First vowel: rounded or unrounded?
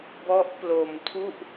rounded